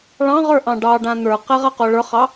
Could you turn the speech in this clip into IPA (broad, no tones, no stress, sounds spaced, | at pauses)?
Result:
ɭ ɑ̃ ʁ ə˞ ʔ ɑ̃ ɖ ɑ ɖ ã n̪ ə˞ q ɛ ʁ a q o ɭ ə˞ χ ɑ